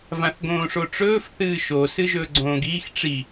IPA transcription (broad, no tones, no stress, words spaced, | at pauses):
vãθɡõːʂoʈ͡ʂɵːf θɨːʃo sɨʒɵːɡ͡ǀõːɡiːx ʈ͡ʂi